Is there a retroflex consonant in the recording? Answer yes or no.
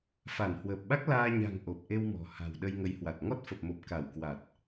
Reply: no